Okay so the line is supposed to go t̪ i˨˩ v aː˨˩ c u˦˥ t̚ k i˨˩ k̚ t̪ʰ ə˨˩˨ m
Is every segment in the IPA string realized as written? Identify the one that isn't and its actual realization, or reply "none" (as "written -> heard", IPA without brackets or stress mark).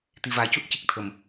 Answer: k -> c